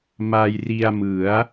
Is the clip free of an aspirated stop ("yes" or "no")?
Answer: yes